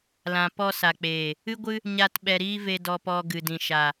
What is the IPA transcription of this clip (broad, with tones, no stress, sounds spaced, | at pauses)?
l ã˨ p ɔ˧ s a˨ k͡p eː˨ | ɨ˦ ɡʷ ɨ˦ | ɲ a˧ t ɓ ɛ˧ ɾ iː˦ v e˧ d ɔ˧ p ɔ˧ ɡ ɨ˨ d ĩ˨ ʃ a˨